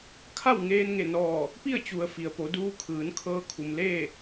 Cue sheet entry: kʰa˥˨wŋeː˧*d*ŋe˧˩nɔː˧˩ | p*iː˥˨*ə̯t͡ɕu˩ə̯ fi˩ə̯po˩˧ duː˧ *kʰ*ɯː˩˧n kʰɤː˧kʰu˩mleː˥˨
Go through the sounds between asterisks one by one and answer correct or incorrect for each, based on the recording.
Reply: incorrect, incorrect, correct

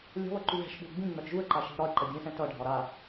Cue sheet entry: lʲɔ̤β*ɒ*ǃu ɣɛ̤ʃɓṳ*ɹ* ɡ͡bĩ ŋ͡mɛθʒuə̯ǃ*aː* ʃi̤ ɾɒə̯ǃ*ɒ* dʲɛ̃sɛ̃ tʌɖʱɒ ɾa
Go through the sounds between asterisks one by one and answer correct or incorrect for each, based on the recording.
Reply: incorrect, incorrect, incorrect, incorrect

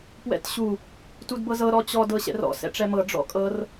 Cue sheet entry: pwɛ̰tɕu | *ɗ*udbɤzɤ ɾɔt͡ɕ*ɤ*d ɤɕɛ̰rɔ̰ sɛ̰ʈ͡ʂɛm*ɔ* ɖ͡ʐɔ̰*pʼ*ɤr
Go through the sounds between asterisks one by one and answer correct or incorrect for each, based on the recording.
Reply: incorrect, incorrect, incorrect, incorrect

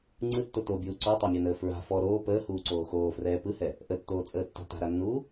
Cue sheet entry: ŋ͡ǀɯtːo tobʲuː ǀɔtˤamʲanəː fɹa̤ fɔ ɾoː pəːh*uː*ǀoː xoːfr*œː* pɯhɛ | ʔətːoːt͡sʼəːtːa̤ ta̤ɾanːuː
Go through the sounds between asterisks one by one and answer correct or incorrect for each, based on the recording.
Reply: correct, incorrect

